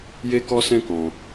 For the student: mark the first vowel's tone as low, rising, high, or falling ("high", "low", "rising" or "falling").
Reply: high